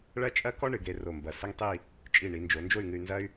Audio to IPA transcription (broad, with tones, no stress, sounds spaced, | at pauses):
ɭ ɐ˥ t͡ʃʼ ɐ˥ k ɔ˥ ɳ ɨ˩˧ ɡ ɾ e˧ r o˧˩ m b ɐ˧˩ s ɘ˥ ŋ tˤ i˥˧ | t͡ʃʼ i˧˩ ɳ i˩˧ n d͡ʒ o˩˧ n d͡ʒ o˥˧ y̯ ŋ ɨ˧ y̯ n z ɐ˥ y̯